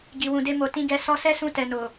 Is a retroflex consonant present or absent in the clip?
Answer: absent